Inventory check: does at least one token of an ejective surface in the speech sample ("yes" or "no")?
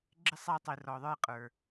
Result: yes